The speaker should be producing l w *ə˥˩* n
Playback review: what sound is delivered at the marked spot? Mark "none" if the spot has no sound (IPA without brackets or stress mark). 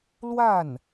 a˥˩